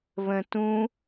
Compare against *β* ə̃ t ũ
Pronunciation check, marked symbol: correct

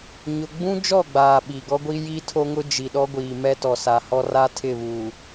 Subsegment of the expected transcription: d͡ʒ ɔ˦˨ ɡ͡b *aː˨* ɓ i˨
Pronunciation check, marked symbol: correct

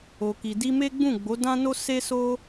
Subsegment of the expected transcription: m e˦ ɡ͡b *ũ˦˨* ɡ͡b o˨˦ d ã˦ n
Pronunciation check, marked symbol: correct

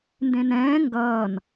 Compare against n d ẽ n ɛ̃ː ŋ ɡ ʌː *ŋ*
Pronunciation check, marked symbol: incorrect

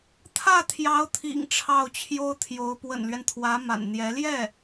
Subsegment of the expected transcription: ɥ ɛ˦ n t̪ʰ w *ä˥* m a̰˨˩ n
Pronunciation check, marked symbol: incorrect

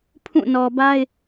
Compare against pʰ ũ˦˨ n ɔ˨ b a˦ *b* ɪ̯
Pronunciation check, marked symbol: incorrect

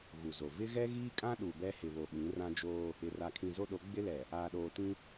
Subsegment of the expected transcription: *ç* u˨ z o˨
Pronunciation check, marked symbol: incorrect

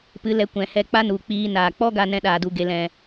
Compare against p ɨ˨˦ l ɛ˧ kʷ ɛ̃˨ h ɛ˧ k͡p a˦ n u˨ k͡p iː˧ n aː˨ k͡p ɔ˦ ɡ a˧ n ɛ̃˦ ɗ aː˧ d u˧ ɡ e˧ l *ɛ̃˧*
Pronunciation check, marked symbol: correct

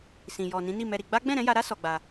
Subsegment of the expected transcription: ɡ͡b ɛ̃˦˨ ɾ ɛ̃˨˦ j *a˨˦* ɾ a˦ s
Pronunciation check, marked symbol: incorrect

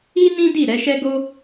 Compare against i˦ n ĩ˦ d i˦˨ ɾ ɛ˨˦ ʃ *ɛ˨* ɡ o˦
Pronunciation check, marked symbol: incorrect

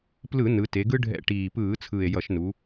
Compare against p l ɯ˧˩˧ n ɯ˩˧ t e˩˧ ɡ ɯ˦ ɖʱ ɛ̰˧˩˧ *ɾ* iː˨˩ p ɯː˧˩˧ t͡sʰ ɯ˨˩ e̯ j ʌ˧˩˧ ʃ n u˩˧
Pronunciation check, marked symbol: incorrect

